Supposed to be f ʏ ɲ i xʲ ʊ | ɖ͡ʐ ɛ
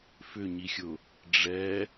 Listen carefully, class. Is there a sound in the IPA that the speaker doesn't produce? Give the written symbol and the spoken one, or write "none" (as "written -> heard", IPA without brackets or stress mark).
none